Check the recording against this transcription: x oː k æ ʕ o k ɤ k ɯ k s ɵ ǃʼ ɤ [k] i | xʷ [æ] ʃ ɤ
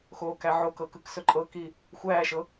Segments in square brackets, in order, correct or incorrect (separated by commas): correct, incorrect